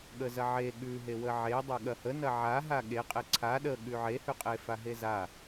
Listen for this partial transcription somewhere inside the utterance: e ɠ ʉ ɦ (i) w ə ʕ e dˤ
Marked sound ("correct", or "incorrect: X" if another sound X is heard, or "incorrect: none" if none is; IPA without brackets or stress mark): incorrect: e